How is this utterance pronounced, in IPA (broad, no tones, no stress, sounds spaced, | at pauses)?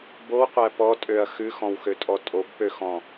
b o w qʷ æ p ɔ tʼ ø ɐ̯ x ʉ x ɔ̃ w x ø tʼ ɔ tʼ o b p ø x ɔ̃